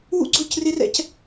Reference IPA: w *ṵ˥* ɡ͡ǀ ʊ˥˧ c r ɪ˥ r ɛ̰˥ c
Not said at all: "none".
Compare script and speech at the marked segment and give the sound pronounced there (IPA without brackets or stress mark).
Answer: ṵ˥